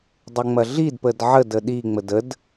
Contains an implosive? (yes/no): yes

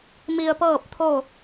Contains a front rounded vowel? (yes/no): no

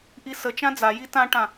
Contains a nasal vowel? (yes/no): yes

